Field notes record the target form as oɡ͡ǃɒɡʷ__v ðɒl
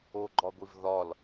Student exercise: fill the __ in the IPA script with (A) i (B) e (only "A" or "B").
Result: A